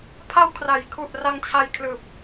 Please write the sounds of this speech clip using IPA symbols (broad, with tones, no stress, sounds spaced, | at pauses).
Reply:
pʰ a˧ w kʰ r a˩˦ j kʰ u˨˩ ʔ r a˧ ŋ t͡ɕʰ a˧ j kʰ l ɯː˨˩ p̚